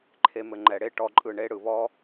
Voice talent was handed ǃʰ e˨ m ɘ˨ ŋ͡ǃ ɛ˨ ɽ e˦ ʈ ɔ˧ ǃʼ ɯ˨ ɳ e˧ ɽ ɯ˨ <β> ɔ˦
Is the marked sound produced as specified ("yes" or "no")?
yes